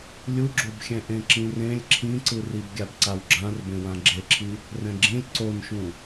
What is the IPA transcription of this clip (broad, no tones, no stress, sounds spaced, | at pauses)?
lʲ u ɡ͡ǁ o b xʲ ɛ̃ ʔ ẽ ǁ ĩ r ẽ lʲ ǁʰ ĩ ǀ ɯ r i b ɡʲ a b ǀ a w ɡ͡ǁ ã r b ẽ w ã ɡ͡ǁ e ǁʰ i | r ɛ̃ ɡ͡ǁ ĩ lʲ ǀ o n ʃ ũ